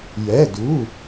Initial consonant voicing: voiced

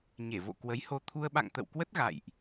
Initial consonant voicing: voiced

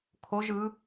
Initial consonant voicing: voiceless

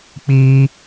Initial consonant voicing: voiceless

